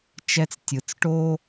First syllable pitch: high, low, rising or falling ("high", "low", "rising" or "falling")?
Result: high